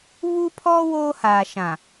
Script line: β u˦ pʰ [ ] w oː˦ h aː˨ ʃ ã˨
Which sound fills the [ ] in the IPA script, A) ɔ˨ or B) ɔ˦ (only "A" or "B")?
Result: B